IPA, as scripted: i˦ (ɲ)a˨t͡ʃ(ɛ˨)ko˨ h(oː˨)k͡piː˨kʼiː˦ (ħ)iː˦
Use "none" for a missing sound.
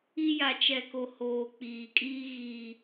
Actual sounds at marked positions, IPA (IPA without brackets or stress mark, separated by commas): j, ɛ˨, oː˨, ɣ